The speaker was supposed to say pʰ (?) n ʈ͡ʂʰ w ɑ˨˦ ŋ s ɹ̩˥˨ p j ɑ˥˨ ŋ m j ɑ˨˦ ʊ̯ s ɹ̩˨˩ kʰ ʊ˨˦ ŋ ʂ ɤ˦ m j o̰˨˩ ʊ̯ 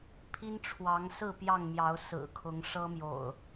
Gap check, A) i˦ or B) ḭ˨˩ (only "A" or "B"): A